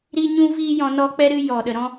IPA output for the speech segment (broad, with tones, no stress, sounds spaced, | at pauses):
ɾ i˦ ɲ ũ˦ v iː˦ j ɔ̃˧ n ɔ˦ k͡p ɛ˦ ɾ ɨ˦ j ɔ˨ ɗ ə˨ ɾ ɔ̃˦